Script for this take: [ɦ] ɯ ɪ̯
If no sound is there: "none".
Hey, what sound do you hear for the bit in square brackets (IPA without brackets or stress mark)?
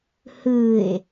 h